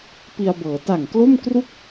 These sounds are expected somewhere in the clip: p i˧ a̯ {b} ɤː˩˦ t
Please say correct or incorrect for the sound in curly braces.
correct